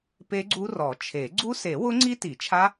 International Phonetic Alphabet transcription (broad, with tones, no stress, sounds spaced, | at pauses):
p e˦˥ ɡ͡ǀ u˦˥ r ɔ˨˩˦ t͡ʃʰ e˨˩˦ ɡ͡ǀ u˦˥ s e˨˩˦ w ʊ˦˥ ŋ͡ǀ i˦˥ t i˨˩˦ t͡ʃʰ a˦˥